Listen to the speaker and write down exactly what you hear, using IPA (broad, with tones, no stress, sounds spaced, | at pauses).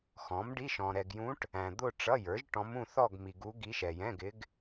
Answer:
x ɔ̃˩˥ m ɖ i˧˥˧ ʃ ɔ̃˨ ɾ ɛ˨ ɡ j ũ˧˥ ʈ | æ̃˨ d̪ ʊ˥˧ ʈ͡ʂ ʌ˧˥˧ j ə˞˩˥ ʒ ʈ ɔ̃˧˥ m ũ˥˧ θ ɔ˥˧ ɡ m i˨ ɡ u˧˥ ɡ i˧˥ ʃ ɛ˨ j ɛ̃˧˥˧ ɡ ɪ˧˥ ɡ